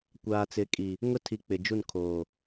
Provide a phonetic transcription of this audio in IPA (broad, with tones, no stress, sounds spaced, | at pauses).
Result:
kʷ aː˨ t͡s ɪ˨˦ kʼ i˨ | ŋ ʊ˦ tʰ i˨ k͡p ɪ˨ d͡ʒ u˦˨ n kʰ oː˨